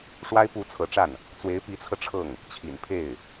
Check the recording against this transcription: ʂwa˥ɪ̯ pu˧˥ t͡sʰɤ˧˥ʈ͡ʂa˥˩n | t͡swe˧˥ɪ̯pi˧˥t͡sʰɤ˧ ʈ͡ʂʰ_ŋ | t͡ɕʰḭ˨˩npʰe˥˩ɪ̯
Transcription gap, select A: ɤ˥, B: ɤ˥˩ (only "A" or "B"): B